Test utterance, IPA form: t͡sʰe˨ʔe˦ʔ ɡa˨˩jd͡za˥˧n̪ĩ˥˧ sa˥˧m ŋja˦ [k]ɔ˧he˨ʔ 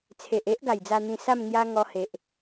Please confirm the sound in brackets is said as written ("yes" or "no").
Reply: no